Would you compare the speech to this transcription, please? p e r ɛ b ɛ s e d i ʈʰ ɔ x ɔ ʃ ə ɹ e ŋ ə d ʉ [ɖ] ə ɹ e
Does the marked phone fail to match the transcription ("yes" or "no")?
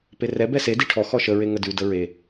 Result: yes